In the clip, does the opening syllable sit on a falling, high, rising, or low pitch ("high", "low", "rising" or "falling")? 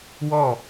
falling